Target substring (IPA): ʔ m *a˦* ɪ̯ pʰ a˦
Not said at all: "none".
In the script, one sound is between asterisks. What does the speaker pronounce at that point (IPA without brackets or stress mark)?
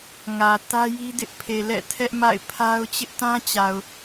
a̰˦˨